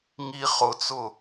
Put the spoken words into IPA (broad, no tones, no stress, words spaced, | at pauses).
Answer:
ŋi χʊt͡sʊ